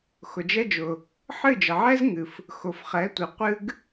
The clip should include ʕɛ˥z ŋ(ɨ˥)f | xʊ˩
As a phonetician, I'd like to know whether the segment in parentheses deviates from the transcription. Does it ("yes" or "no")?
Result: yes